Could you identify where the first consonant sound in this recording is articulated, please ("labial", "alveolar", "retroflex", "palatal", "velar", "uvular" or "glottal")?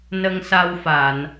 alveolar